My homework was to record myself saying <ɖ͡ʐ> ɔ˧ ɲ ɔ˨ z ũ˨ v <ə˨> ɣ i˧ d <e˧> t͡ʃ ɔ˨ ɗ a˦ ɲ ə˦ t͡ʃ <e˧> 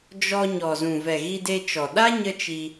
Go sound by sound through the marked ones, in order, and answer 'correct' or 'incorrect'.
incorrect: d͡ʒ, incorrect: ɛ˨, correct, incorrect: i˧

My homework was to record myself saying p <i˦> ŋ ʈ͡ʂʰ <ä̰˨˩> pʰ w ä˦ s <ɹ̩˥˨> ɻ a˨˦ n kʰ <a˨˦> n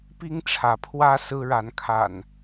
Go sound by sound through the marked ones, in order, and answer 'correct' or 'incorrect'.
correct, incorrect: ä˨˦, incorrect: ɹ̩˦, incorrect: a̰˨˩

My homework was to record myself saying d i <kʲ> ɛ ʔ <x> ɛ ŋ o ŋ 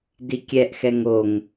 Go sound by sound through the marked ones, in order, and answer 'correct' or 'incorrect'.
correct, correct

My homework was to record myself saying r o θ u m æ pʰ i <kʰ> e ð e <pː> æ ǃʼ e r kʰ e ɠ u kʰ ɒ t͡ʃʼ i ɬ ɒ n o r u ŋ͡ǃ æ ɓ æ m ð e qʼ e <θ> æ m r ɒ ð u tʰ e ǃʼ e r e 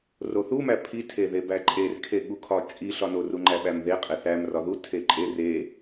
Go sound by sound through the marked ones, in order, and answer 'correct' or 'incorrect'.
incorrect: tʰ, incorrect: b, correct

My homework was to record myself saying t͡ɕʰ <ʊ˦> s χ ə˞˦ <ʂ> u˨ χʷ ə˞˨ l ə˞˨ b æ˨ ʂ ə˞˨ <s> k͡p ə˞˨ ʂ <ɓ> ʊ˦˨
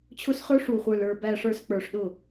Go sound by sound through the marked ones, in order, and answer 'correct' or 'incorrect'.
correct, correct, correct, incorrect: ɗ

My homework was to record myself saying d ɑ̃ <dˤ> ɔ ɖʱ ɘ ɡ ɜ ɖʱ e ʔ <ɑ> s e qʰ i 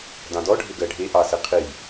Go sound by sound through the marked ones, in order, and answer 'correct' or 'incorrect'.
incorrect: d, correct

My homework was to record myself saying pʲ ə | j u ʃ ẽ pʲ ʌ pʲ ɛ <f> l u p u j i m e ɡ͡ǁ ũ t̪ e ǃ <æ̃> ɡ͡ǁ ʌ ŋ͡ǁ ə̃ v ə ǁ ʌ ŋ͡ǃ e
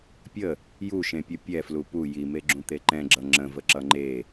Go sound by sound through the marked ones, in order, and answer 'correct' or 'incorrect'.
correct, incorrect: ɛ̃

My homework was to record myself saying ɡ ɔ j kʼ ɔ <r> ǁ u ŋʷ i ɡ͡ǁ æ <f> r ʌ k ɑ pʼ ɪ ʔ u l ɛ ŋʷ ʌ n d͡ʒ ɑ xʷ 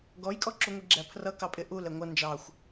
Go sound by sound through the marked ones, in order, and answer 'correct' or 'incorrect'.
incorrect: none, incorrect: pʰ

